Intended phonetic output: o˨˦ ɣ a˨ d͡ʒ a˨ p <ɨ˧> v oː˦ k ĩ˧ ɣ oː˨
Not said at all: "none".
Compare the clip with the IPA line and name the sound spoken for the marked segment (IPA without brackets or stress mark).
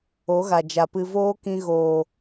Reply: ɨ˧